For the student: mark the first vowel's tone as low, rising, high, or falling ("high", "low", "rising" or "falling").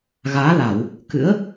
rising